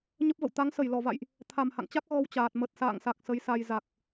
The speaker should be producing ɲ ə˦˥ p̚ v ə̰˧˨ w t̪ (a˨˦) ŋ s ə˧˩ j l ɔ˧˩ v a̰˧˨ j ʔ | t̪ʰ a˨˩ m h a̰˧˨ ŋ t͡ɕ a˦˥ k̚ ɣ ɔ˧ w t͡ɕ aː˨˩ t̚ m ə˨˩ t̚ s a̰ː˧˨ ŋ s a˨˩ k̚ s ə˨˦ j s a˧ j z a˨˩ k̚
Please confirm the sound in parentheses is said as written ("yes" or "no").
yes